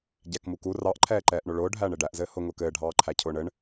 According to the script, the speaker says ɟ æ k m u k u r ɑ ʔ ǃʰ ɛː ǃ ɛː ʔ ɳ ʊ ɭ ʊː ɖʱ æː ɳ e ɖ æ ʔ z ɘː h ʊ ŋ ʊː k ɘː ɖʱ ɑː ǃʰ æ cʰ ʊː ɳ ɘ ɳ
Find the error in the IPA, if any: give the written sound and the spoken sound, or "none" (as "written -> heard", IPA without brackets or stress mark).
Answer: none